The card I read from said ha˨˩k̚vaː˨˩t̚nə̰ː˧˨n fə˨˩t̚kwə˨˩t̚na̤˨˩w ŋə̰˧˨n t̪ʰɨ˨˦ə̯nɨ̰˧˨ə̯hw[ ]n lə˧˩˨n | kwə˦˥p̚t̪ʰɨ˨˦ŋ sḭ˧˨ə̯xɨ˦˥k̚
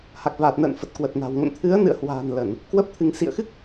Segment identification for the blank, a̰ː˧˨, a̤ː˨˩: a̤ː˨˩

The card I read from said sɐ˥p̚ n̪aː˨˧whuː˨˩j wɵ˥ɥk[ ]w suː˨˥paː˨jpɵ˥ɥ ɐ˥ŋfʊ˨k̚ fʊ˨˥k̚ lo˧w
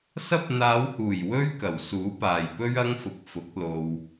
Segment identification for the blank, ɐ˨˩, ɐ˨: ɐ˨˩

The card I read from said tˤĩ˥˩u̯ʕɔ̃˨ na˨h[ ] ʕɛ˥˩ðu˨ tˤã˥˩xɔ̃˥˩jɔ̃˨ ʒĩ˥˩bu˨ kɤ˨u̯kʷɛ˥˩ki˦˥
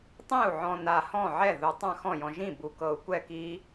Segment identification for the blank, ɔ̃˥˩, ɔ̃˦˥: ɔ̃˥˩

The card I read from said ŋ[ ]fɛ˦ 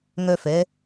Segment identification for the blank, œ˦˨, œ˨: œ˦˨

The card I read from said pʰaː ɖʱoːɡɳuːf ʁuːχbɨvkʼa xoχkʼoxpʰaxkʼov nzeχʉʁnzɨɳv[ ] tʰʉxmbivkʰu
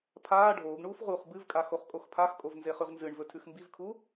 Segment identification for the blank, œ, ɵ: ɵ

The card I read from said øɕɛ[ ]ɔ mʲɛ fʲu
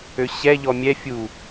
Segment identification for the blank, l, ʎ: ʎ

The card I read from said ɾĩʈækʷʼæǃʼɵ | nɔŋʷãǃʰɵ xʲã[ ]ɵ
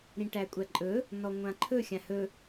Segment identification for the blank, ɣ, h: h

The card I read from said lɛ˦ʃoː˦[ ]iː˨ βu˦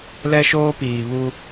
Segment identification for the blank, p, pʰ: p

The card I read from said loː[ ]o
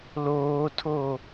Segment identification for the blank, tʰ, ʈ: tʰ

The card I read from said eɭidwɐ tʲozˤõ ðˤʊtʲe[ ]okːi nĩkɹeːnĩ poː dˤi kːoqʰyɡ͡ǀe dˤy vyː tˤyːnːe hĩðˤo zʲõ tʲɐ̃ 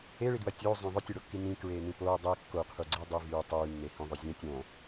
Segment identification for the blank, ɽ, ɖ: ɽ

